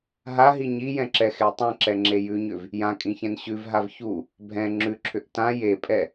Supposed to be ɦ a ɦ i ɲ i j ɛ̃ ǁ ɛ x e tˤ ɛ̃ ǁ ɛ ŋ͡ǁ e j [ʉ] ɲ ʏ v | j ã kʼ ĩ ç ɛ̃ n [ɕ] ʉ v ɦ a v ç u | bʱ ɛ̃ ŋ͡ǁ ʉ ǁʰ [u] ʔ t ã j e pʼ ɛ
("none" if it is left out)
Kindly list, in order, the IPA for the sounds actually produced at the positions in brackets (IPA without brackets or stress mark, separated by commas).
ʉ, ɕ, ʏ